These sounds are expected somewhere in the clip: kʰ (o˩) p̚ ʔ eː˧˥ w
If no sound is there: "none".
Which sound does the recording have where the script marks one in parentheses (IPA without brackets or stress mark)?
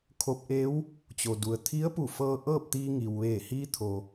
o˧